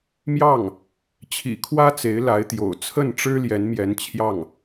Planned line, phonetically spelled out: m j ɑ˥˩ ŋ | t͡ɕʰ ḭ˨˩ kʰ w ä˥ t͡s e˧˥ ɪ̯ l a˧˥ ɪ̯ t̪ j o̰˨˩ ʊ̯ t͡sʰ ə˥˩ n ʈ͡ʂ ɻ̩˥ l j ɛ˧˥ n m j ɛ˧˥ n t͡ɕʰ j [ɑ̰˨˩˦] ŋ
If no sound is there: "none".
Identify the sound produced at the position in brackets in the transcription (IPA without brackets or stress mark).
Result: ɑ˥˩